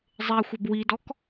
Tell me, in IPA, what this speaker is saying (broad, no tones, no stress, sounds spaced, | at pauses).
zˤ e xʷ ɐ b w i d ɔ k